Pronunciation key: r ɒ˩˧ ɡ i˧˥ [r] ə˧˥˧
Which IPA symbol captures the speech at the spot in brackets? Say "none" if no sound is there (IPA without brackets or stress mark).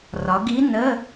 n